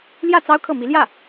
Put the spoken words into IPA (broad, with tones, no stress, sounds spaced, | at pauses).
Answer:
l j ä˥˩ t͡s ɑ˥ ʊ̯ kʰ ɤ˥˩ m i˧˥ l j ä˥˩